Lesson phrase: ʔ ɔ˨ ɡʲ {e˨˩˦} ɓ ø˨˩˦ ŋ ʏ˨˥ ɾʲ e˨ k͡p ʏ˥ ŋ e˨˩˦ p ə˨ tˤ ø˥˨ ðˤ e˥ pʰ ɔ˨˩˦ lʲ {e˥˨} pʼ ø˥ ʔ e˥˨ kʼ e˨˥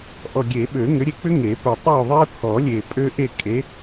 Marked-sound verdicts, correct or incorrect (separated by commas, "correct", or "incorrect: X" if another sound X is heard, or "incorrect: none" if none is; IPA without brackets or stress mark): correct, incorrect: e˨